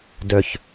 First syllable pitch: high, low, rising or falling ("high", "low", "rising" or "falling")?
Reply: low